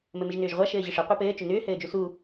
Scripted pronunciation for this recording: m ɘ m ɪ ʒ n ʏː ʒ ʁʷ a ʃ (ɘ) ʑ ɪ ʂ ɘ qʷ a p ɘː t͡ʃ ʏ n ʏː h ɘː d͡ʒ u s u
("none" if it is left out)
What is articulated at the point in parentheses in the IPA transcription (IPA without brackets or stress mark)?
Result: ɘː